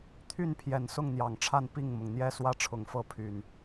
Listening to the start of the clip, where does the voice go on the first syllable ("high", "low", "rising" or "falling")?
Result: falling